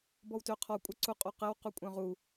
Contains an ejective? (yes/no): yes